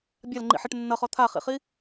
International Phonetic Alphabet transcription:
bʲ a l ŋ͡ǃ ḭ ħ ɛ ʈ nː ʌ χ ɔ t̪ʰ a χ ḭ χ i

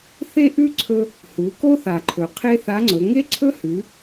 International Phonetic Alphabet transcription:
θ e˥ ʔ ʉ˥ ǀʰ ɵ˧ | h u˩˧ k o˥ θ a˩ ǃʰ ɵ˩ qʰ e˥ θ a˧˥ ŋ͡ǀ ɵ˩˧ ŋ e˥ ǀʰ ɵ˥ h ʉ˩˧

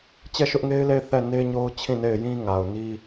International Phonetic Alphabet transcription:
t͡ɕ ɛ˦˨ ʃ ʊ˦ ʔ ŋ e˦ ɪ̯ l e˦˨ ɪ̯ θ ɛ˦˨ n e˦ ɲ o˦ ʊ̯ t͡ɕʰ ĩ˦˨ n e˦˨ ɪ̯ j ĩ˦ ŋ a˨ ʊ̯ n i˦

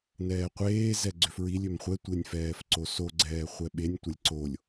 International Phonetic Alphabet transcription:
n ɛː qʷ eː z ɛ ɡ͡ǀ ʏ f ɹ i lʲ ʏ m χʷ ɛ tʷ e nʲ f ɛː f ǀ o s o ɡ͡ǀ ɛː χʷ ɛ ɓ e nʲ tʷ ɛ lʲ ǀ o lʲ

